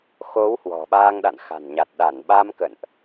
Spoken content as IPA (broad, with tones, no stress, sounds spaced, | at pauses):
x o˨˦ w h w ɔ̤˨˩ ɓ aː˧ ŋ ɗ a̰˧˨ n x a̤˨˩ n ɲ a˨˩ t̚ ɗ a˧˩ n ɓ a˧ m k ə̰˧˨ n ʔ